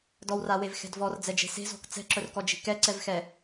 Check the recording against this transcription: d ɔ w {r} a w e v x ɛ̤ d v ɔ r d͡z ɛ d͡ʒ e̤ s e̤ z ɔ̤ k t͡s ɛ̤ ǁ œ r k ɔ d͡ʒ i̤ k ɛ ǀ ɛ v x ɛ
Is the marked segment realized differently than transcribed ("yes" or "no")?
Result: no